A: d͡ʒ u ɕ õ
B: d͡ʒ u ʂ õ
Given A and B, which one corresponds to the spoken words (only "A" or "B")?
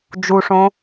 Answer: B